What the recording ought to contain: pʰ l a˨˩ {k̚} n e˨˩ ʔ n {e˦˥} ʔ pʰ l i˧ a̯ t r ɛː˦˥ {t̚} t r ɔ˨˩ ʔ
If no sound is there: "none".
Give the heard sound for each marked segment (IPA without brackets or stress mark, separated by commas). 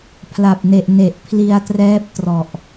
p̚, e˨˩, p̚